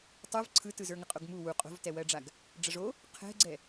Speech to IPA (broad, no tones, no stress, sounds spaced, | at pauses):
tˤ ɯ v ǀʰ ɯ t ɯ z ə˞ ŋ ə qʼ o ɡ m u w u qʼ o̤ v t ɛ w ɜ ɖ͡ʐ a ɡ | ɖ͡ʐ ə ʐ o | qʰ ɛ̤ ɡ͡ǀ ɛ